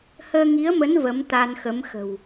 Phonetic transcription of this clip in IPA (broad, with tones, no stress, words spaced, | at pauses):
həː˧ŋi˨˦ə̯mə˨˦n və˨˦mt̪a˧nxə˨˦m xə̤˨˩w